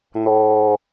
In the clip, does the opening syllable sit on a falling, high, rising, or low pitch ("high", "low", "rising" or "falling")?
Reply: low